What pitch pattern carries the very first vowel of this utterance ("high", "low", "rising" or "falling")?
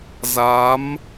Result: rising